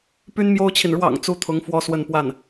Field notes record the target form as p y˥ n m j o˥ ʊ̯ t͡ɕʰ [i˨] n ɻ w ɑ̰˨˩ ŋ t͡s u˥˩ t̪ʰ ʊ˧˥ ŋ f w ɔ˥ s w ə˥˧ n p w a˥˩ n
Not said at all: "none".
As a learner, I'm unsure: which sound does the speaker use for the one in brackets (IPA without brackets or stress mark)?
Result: i˨